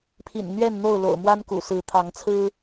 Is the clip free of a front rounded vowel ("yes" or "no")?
yes